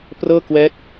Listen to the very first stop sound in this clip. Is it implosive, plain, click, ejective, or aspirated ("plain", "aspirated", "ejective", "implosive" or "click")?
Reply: plain